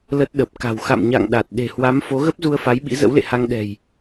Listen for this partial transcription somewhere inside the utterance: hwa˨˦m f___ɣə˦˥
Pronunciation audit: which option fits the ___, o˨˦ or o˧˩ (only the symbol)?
o˨˦